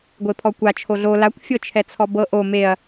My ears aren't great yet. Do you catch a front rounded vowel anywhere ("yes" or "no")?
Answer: no